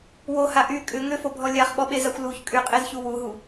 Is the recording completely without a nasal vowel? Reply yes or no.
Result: yes